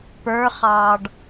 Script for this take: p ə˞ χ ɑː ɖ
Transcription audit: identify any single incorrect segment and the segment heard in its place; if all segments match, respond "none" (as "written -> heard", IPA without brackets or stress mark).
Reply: none